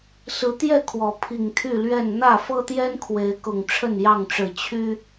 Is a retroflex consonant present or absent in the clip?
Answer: present